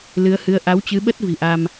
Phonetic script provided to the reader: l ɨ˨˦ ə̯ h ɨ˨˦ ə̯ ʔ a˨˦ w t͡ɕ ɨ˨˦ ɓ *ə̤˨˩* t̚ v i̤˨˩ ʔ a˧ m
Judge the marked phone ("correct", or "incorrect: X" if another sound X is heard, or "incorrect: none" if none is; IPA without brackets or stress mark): incorrect: ə˦˥